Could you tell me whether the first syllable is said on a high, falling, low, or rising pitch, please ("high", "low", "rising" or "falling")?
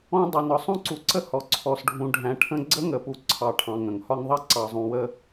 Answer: high